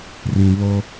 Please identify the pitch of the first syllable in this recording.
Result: low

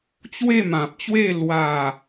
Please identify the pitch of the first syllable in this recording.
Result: falling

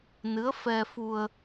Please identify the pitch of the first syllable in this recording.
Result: rising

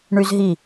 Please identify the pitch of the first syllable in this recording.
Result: high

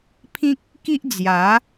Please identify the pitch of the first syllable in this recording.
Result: high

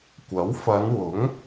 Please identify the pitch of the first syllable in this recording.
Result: rising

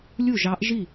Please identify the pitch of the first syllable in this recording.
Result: falling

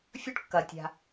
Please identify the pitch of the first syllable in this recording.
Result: high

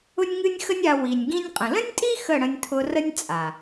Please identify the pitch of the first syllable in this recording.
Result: high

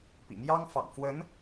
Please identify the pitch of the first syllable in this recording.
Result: low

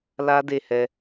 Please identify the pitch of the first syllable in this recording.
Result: high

